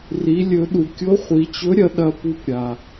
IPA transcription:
r i˩˧ lʲ ɵ˩˧ ɗ u˩ kʲ o˧˥ χʷ i˩˧ t͡ɕ ɵ˧˥ ɾʲ ɐ˩˧ ɗ ɐ˧ p u˧ p ɾʲ a˩

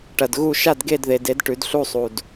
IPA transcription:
ʈ ɐ˨ d ɣ u˥˨ ʃ a˥˨ d ɡ e˥˨ d ð e˨ d e˨˥ d ʈ ʉ˨˥ d ɬ u˥˨ sˤ u˨ d

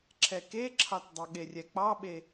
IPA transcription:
ǁʰ ɛ k e ǁʰ ɑ t dˤ ʌ ɠ e rʲ ɛ k͡p ɑ ɓ e

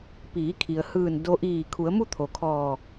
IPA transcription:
p iː˩˧ kʰ i˩ ə̯ h ɯː˧˩ n d o˧˥ ʔ iː˧˩ kʰ u˩˧ ə̯ m u˥˨ t̪ʰ o˩ kʰ ɔː˧˩

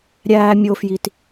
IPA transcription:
ɾʲ æː˨ mʲ o˨ f j i˨ t

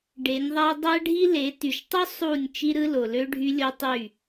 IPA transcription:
ɖ e˨˦ nʲ ðˤ æ˦ dˤ æ˦ ɖʱ i˦ l e˨˦ t y˨ ʃ tˤ o˦ sˤ u˦˨ nʲ t͡ʃ i˦ ɾ ɯ˦ l o˨ l ø˦ ɖʱ y˦ lʲ o˦ tˤ y˦˨

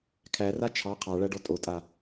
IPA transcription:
kʰ æ r a t͡ʃʰ ɑ qʰ ɑ ɭ æ ɖ ɔ tʼ o tʼ a

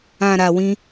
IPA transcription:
ã˨ ɾ a˨ w ĩ˧

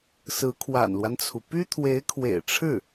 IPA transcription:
s ɹ̩˧˥ kʰ w a̰˨˩ n l w a˦ n t͡sʰ u˩ p y˥ t̪ʰ w e˧˥ ɪ̯ kʰ w ḛ˨˩ ɪ̯ ʈ͡ʂʰ ɻ̩˥˩

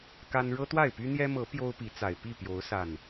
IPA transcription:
k a˦ n ɻ ɤ˦ t̪ w a˥˨ ɪ̯ p y˦ n̪ j ɛ˦ m ɤ˨˦ p j o˦ ʊ̯ p i˨˦ t͡s a˨˩ ɪ̯ p i˥˨ p j o˨˦ ʊ̯ s a˨˩ n

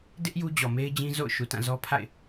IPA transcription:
d ɪ˦ ʔ j u˦ d͡ʑ ɔ˨ m e˦ ɪ̯ d͡ʑ ĩ˦ z o̰˦˨ ʊ̯ ʃ u˨ t ã˦˨ z ɔ˦ pʰ a̰˦˨ ɪ̯

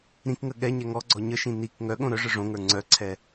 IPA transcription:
ɾ ĩ k ŋ ə ɠ ɛ ɲ ɛ ŋ ɔ ɡ͡ǀ ɔ ɲ ə ʃ ĩ n i k ŋ œ ɠ õ ɾ œ ʐ ə˞ ʐ õ ŋ ə˞ ŋ͡ǀ œ ǀʰ ɛ

